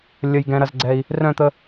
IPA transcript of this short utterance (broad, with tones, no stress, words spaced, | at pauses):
lʲə˨jɡɛ̃˨ ɾɐ˨zɡ͡ǀɛ˨i̯ | rœ̃˦˨t̪ə˧